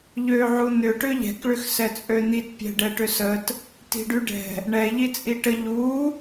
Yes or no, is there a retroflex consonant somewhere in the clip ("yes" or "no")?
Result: yes